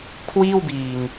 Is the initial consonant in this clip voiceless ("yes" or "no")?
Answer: yes